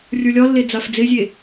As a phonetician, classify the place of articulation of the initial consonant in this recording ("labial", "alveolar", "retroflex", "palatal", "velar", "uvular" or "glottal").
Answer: alveolar